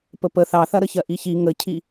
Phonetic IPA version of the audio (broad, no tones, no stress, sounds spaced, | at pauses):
p ə p ə θ ɑ θ ɐ ɾ ə ç ɜ ʔ i ç i ŋ ə cʰ i